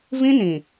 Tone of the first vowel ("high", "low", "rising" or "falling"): high